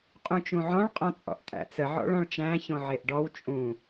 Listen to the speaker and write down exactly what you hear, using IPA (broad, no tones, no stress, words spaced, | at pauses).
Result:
qʼũt͡ʃũʕɔ̃ɭ qʼɔ̃t͡sʼɔ̰ʔtʼæ̰t͡sə ʕɔ̰ɭɔ̃ɭt͡ʃæ̃ çõʕeʔɖɔw t͡ʃʼũ